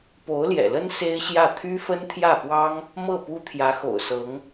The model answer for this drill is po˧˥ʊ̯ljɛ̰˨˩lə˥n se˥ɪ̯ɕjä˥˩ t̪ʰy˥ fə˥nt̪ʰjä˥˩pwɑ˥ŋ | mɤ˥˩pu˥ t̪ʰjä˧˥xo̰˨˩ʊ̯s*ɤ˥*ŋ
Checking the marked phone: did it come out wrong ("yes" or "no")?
yes